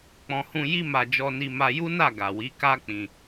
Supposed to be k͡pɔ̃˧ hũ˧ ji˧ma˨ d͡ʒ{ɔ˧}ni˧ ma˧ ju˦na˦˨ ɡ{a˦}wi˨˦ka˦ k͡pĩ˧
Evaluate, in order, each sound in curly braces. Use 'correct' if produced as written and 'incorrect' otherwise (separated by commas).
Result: correct, incorrect